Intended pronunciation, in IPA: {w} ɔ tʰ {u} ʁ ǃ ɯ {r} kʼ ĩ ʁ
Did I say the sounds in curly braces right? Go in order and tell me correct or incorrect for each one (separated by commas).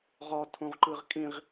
incorrect, incorrect, incorrect